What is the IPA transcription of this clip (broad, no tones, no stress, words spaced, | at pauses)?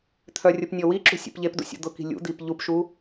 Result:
t̪ʰœrʲʊp nʲɔwiǁṳ sʲṵpʎepdṵ sʲṵd̪ʊki̤ lʲṵd̪ip ʎupʃu